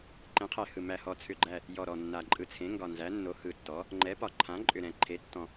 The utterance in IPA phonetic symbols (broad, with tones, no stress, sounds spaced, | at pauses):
ǃ ẽ˩˥ qʰ ɛ˨˩ h ɯ˨˩ m æ˨˩ h ɔ˨˩ t͡sʰ ʏ˨˩ ɡ͡ǃ æ˨˩ | j ɔ˨˩ ɾ ɔ˨˩ nː a˨˩ ǃʼ ɯ˨˩ t͡sʰ ẽ˩˥ ŋ ɡ ɒ˨˩ n z æ˩˥ nː o˩˥ h ɯ˨˩ tː ɔ˩˥ | ŋ͡ǃ ɛ˩˥ p ɒ˨˩ ǃʰ ã˩˥ ǃʼ ʏ˨˩ ɾ ɛ̃˨˩ ǃʰ e˩˥ tː ɔ̃˨˩